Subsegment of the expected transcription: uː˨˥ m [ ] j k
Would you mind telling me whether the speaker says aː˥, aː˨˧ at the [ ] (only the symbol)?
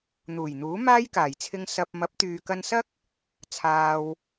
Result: aː˥